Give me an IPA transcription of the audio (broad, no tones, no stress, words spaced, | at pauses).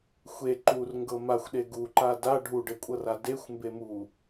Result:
xʷe ǃurŋɡɤ maxʷɗe ɡuǃa da ɖʱuɖekʷʼɤra dexʷmbemu